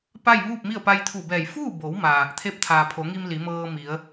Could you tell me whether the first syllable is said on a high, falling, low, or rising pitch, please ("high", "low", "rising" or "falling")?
falling